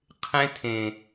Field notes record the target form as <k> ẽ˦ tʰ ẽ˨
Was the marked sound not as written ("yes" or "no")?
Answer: yes